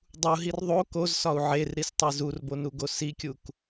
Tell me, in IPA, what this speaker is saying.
dˤ u ɦ i r ðˤ o k o z s ɒ u̯ ʕ e r ɾ i s tˤ e z u r b o n u ɡ o s i kʲ u k

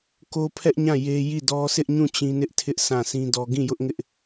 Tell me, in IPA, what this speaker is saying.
k o˦ pʰ ɛ˦ ʔ ɲ ã˦˨ j e˦ j i˦˨ d ɔ˦ s ɪ˦ ʔ ɲ ũ˦˨ t͡ɕ ĩ˦ n ɪ˦ ʔ tʰ ɪ˦ ʔ s ã˦˨ s ĩ˦ d ɔ˦ ɡ ĩ˦˨ j ʊ˦ ʔ ŋ ɪ˦ ʔ

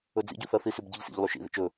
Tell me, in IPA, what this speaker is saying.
ɵ d͡z ḭ ɟ u θ ɐ θ i s ʉ b ɟ ɨ ʎ s ḭ ʎ lˠ ʉ ʃ ḭ ð ḭ t͡ʃ ɵ

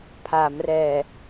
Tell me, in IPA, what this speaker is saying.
pʰ a˩˦ m r ɛː˨˩

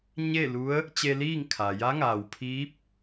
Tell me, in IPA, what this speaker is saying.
ɲ e˥˨ l u˧˥ ə̯ | t͡ɕ e˧ l iː˥˨ ŋ kʰ a˩ j a˧˥ ŋ aː˩ w pʰ iː˧˥ p̚

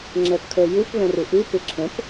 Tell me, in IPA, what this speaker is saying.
ŋ͡ǁ ɛ p kʰ ə˞ j ɯ p β ɛ̃ r ɨ ʔ ɨ p ɪ ǁʰ ə̃ p

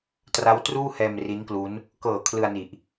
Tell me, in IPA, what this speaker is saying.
t r a˦˥ w t r uː˥˩ h ɛː˧ m r i˦˥ n k l u˦˥ n | k ɤː˨˩ kʰ l ɯ˧ a̯ n i˨˩ ʔ

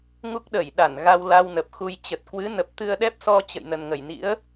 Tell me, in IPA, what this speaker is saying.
ŋ u˦˥ k̚ ɗ ə˧˩ j ɗ a˧˩ n ɣ a˧ w l a˧ w n ə˨˩ p̚ x u˧ j t͡ɕ ə˨˩ t̚ k w ɨ˨˦ n ə˨˩ p̚ t̪ ɨ˧ ə̯ ɗ ɛ˦˥ p̚ s ɔ˧ t͡ɕ ə̰˧˨ j n ə˨˩ n ŋ ə˧˩ j n ḭ˧˥ ə̯

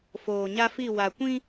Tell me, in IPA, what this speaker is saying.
f oː˨ ɲ a˦ f i˦˨ w a˨ kʷ ĩ˦

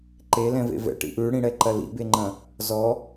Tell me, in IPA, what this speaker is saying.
ǃ e l ɛ̃ v ḛ v ɛ̰ ʈ ḭ ʔ ʉ ɽ ĩ ɽ ɛ ǃ ɐ l ḭ b e ŋ͡ǃ ɐ̃ | z ɔ

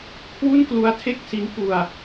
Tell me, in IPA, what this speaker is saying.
kʰ w u˥˩ n k l u˦˥ a̯ tʰ e˥˩ k̚ s i˦˥ n p u˧ a̯

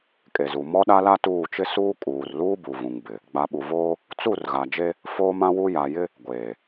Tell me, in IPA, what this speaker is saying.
kʼ e˨ z u˨ m ɔ˦ ɗ a˦ l a˦ t uː˦˨ t͡ʃ ɪ˦ s uː˦ kʼ uː˨ r l uː˦ b u˨ v ũ˨ ŋ b ɪ˨ | ɡ͡b a˨ ɓ u˨ v oː˦ | t͡s u˦˨ r ɣ a˨ d͡ʒ e˦ | f oː˦ m ã˦ w u˦ j a˨ j ɪ˦ | ɡʷ eː˨

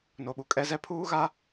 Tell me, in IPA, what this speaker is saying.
n o˨ ɓ u˨ kʼ ɛ˦ z ɛ˦ pʰ uː˦ ɣ a˦

